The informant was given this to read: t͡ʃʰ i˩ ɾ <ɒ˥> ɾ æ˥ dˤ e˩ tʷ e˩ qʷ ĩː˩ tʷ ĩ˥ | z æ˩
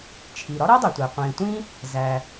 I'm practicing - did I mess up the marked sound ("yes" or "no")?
no